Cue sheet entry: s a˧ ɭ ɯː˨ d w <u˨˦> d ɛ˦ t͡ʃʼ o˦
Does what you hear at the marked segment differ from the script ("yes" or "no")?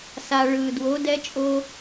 yes